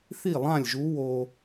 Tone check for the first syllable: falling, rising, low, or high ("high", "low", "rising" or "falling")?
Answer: falling